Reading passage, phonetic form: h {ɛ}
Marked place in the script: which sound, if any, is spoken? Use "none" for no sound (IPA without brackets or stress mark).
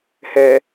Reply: ɛ